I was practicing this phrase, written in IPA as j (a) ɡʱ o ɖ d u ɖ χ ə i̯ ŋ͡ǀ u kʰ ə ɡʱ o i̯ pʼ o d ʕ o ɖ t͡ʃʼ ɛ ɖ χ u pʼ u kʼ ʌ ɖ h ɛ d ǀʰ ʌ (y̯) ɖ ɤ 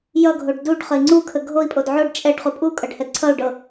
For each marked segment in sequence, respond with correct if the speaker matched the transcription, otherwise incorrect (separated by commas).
incorrect, incorrect